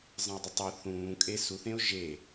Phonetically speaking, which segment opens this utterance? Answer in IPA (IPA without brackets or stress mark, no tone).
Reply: zˤ